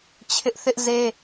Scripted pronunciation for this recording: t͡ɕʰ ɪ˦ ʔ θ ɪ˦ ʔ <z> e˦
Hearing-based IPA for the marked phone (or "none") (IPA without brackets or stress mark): z